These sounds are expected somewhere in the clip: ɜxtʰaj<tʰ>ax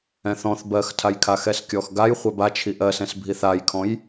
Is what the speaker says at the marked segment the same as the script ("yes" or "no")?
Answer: no